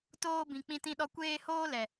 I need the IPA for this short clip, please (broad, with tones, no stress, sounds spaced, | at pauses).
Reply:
t oː˦ b ĩ˧ k͡p ĩ˦ t ĩ˦ ɗ ɔ˦ kʷ eː˦ h oː˦ l ɛ˨